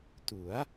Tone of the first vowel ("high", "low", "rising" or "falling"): rising